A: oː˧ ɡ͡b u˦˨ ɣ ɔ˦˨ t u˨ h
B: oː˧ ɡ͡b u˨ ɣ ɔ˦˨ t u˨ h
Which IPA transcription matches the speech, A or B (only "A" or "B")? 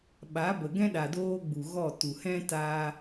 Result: B